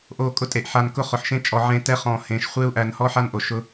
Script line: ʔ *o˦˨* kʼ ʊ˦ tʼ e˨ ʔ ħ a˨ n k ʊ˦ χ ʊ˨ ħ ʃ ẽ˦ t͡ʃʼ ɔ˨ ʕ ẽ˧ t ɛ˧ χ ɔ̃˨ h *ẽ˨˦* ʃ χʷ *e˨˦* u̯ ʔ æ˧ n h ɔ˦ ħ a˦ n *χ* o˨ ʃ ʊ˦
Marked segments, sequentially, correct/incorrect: correct, correct, incorrect, incorrect

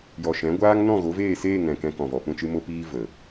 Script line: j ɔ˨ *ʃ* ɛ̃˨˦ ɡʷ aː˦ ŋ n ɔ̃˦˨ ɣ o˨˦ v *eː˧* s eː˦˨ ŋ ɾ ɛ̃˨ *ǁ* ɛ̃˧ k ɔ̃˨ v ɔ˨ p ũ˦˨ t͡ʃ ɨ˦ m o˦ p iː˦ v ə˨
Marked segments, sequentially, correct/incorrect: correct, incorrect, incorrect

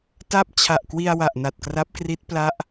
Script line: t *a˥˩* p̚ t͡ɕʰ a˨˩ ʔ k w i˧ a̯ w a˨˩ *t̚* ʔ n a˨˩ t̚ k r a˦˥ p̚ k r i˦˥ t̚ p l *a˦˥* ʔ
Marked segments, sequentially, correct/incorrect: correct, incorrect, correct

